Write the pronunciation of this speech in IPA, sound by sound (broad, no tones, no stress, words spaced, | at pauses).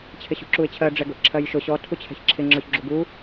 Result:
t͡ɕʰɪɕṳǁuɪ̯t͡ɕʰɜ ɖ͡ʐɛɡʊʔǁʰɜjʃʊ ɕɔ tʰut͡ɕʰɛ̤çǁʰɪ ŋ͡ǁɔçɡ͡ǁuɡu